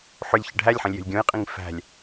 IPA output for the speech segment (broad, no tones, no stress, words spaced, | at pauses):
ħʏlʲ çəɖʱælʲħə̃lʲ jə̤lʲɡʲõjqʼĩŋ fæ̤lʲ